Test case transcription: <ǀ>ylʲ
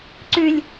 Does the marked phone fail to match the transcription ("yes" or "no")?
no